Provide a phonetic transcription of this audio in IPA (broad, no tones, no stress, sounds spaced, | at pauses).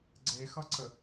ɡ͡ǀ e x ʌ ǀ ə